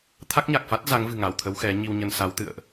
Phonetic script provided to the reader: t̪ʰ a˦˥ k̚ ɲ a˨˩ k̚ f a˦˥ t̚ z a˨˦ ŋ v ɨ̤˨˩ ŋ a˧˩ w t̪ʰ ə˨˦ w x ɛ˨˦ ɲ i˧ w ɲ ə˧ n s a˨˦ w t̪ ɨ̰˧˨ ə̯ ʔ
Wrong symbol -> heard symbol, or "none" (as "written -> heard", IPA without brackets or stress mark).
none